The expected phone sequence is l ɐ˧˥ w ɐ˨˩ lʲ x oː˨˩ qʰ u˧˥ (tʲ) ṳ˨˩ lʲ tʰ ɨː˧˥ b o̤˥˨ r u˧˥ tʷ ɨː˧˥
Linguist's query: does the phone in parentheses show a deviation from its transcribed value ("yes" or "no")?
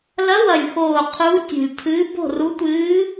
no